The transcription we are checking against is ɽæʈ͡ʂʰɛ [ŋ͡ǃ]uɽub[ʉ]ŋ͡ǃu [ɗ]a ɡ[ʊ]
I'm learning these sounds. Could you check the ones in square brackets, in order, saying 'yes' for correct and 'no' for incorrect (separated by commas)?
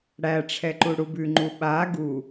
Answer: no, yes, no, no